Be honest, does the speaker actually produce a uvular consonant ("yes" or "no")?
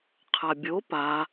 yes